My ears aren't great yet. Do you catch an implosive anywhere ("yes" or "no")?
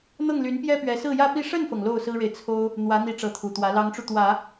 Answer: no